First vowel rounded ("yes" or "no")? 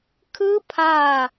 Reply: no